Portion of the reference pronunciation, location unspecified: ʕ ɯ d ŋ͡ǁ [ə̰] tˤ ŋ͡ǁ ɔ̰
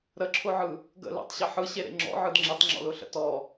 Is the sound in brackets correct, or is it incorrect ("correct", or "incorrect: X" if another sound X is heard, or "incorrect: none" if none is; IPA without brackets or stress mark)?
incorrect: ə